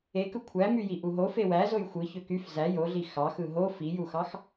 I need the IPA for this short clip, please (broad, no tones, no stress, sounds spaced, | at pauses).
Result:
e k ɯ kʷʰ æ m y j i ʔ u ɦ o f e w æ z o j xʷ ɯ ç ø k y f z æ j o ɮ i x ɑ x ɯ ɦ o f i j u x ɑ x